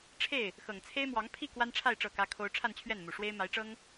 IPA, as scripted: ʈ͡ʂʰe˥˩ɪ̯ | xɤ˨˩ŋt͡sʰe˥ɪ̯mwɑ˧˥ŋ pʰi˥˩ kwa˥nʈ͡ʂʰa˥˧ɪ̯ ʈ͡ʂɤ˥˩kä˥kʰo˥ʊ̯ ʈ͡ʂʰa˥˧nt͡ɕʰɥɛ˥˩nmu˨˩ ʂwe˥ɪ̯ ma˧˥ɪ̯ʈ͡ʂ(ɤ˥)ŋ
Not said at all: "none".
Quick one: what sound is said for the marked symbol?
ɤ˥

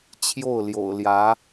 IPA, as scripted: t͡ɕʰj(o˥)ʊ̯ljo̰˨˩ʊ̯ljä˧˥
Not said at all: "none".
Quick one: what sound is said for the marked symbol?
o˥˩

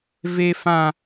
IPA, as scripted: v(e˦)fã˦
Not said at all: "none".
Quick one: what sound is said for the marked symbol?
e˦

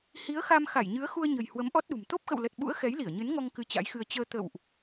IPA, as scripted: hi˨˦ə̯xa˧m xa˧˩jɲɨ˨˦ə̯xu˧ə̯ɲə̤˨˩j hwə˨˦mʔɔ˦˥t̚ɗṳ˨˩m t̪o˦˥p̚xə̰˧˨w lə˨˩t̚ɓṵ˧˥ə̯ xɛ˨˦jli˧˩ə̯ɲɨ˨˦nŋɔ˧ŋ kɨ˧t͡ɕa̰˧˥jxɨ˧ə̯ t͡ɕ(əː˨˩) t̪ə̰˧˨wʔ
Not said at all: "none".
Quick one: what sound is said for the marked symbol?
əː˧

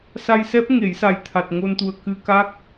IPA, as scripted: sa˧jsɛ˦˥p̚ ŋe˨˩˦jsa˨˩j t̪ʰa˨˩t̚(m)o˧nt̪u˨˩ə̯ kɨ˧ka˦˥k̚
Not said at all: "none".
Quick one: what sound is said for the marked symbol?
ŋ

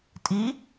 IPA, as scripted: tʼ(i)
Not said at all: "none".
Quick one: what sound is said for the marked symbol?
i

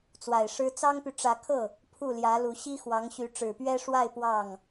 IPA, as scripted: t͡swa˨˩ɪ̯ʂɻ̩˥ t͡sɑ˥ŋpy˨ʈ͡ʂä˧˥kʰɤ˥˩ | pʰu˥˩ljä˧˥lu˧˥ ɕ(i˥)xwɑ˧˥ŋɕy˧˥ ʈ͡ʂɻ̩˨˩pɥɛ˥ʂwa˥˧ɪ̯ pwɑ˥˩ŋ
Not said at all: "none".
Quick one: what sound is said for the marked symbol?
i˥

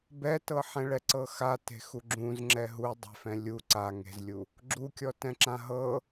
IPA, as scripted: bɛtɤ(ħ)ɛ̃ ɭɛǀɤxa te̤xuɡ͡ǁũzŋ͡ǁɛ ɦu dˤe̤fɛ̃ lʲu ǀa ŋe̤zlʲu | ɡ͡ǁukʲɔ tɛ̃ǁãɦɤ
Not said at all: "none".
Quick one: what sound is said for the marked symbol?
ħ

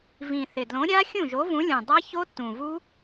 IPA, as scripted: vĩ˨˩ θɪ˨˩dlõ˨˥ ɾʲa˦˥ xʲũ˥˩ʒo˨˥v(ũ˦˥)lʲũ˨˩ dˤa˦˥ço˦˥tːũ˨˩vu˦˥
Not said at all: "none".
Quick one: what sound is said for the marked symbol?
ũ˨˥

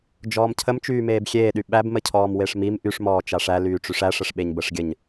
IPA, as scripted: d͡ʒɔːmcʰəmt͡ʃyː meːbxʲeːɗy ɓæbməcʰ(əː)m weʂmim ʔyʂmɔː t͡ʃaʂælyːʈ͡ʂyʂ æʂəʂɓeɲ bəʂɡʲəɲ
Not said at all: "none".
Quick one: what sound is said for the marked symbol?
ɔː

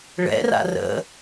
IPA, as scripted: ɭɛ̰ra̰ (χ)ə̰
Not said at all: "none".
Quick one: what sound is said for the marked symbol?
r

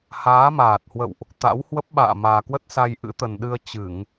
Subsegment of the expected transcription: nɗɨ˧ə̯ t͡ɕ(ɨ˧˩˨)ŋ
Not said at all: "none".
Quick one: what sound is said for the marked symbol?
ɨ˧˩˨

